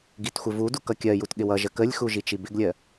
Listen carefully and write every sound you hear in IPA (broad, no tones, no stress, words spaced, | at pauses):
ɡitxʷɪvudu kʌkʲɜjut ɠɪwʌʒə kəlʲxu ʒit͡ʃibɪɡlʲɜ